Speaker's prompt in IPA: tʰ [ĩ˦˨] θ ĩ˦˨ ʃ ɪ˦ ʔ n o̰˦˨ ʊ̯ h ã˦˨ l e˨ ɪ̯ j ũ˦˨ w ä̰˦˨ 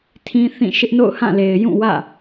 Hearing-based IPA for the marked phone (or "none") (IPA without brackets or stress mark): ĩ˦